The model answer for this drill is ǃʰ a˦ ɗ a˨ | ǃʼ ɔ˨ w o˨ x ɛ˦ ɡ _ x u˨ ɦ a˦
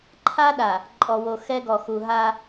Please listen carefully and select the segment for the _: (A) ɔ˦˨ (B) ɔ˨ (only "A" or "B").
B